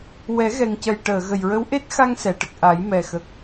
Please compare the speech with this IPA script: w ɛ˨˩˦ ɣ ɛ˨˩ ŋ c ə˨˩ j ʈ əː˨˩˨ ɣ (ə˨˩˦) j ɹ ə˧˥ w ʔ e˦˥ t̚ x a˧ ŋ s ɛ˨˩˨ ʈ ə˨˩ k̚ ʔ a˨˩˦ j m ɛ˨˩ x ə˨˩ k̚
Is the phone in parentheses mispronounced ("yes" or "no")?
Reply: yes